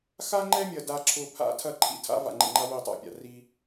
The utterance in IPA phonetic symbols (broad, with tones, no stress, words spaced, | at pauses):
xa˦ŋ͡ǃɛ˦mʲɐ˨ da˨ǁʰʊ˨ pʰa̰˦tʰɐ˦˨ǃʰḭ˦ tʰa̰˦va̰˨ŋ͡ǃḛ˨ŋ͡ǃa˦ wi˦˨tˤa̰˦pʲa̰˨ ri˦